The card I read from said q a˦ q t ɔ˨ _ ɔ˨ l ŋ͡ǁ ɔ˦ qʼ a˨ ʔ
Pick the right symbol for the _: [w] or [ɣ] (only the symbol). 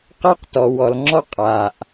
w